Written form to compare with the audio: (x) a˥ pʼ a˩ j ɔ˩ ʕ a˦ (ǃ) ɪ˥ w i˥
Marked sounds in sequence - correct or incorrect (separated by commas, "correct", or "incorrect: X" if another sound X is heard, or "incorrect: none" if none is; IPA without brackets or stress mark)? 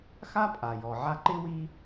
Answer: correct, correct